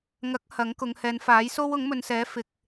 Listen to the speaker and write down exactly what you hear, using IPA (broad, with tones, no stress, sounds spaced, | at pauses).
ŋ ɐ˨˥ k̚ h ɐ˨˥ ŋ k ʊ˨˧ ŋ h ɛː˨˧ n f aː˨˥ j s o˥ w ʊ˨˥ ŋ m ɵ˨ n s ɛː˨˥ f ɪ˨ k̚